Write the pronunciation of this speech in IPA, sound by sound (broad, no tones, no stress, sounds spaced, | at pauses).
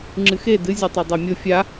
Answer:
ŋ͡ǁ ɨ x e d ɨ zʲ u tˤ e dˤ a mʲ o fʲ a